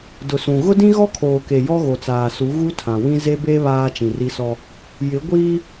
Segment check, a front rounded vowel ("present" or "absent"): absent